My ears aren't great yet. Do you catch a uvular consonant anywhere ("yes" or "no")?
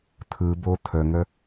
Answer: no